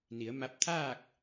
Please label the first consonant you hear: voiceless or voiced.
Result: voiced